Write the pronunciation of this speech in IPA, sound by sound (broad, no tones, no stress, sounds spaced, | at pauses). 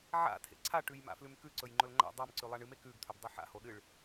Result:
ʕ a̰ tʰ ḛ ǀʰ a ʈ ʉ j m a̰ f l ʉ m k ʉ ǀ ɵ j ŋ͡ǃ ɵ l ŋ͡ǃ a̰ dˤ a m ǀ ʉ lˠ a ɳ ɨ m e k ʉ ɡ tʰ ɵ b dˤ ɨ ħ a̰ h o ɗ ɨ ɭ